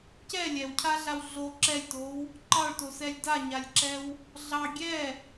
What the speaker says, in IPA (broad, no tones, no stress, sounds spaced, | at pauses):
c ɛ lʲ ɛ w cʰ a ɮ a w ɮ o ǁ ɛ lʲ t o w | ǃ ɑ ɭ t o s ɛ lʲ d a ɲ a lʲ ǁ ɛ w | ɮ ɑ ɡʲ ɛ